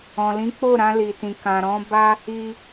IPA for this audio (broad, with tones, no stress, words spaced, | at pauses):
ɔ̃˨lĩ˨˦ k͡po˦˨ɾã˧ li˨tĩ˨ kã˨ɾɔ̃˨˦ ba˦ | i˧